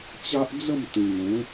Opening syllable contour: high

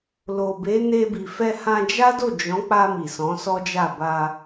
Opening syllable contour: low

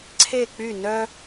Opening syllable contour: falling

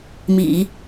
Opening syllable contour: low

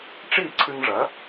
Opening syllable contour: falling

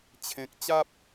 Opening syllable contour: low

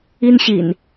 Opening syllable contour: high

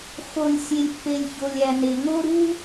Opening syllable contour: low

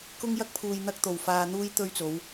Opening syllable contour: high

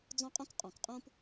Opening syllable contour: high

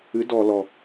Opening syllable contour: rising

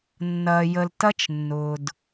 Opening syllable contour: low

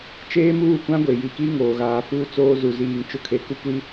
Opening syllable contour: high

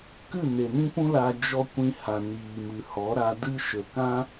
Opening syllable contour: falling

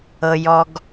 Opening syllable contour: low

